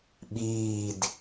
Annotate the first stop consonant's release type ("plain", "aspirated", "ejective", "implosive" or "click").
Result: implosive